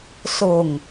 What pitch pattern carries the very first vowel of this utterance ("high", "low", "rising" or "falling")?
low